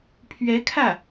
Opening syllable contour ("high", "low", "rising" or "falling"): rising